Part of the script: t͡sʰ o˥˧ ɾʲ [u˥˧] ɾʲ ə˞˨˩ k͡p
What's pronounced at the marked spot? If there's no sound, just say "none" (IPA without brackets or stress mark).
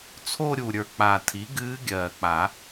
u˨˩